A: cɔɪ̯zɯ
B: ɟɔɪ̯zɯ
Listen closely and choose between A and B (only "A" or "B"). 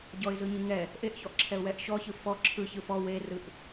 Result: B